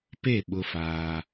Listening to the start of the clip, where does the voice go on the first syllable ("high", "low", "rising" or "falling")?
falling